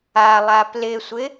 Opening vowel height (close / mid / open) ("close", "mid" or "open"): open